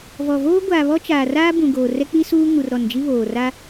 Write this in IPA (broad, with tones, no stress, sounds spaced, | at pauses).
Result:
v ɔ˨ v oː˦ ɡʷ aː˨ β ɔ˦ t͡ʃ aː˨ r aː˦ b ũ˨ ɡ oː˨ r ɛ˦ k͡p i˦ s uː˦ ŋ u˨ r ɾ ɔ˨ n d͡ʒ i˦ β oː˨ r a˦